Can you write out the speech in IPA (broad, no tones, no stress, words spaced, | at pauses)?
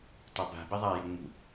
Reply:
tˤaba̤be ðˤajɤ ŋ͡mṳ